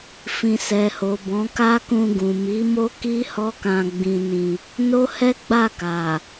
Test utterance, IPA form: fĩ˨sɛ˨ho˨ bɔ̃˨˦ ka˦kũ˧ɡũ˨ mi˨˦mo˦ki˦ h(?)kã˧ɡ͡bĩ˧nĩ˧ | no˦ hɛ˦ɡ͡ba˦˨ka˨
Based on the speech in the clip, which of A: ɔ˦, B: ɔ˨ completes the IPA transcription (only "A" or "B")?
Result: A